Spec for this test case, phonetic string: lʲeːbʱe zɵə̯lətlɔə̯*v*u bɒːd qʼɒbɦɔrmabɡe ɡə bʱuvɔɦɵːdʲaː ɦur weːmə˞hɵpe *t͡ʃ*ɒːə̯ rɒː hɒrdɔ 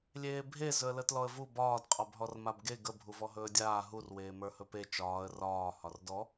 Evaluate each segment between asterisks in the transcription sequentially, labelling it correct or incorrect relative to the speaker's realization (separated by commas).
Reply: correct, correct